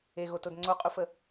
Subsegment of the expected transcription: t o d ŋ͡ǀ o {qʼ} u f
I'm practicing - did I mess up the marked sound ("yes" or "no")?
no